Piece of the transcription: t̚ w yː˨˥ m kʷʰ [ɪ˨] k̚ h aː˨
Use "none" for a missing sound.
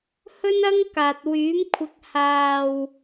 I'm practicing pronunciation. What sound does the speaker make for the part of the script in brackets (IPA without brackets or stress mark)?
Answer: ɪ˨